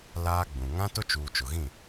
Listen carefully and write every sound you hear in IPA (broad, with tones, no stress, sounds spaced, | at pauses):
l aː˦ ɡ͡b ũ˨ ŋ ã˦ t ʊ˦ t͡ʃ uː˨ t͡ʃ ʊ˨ ɣ ĩ˦˨